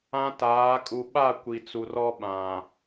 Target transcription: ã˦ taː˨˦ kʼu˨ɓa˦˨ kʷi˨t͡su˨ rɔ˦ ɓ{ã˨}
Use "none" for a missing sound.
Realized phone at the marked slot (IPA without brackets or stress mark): ã˨